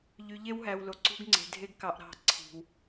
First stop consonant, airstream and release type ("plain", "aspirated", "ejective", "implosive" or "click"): click